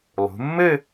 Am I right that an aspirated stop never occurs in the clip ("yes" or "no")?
yes